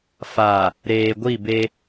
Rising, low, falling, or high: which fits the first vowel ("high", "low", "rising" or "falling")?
low